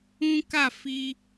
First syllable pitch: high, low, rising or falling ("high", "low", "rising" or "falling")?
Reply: high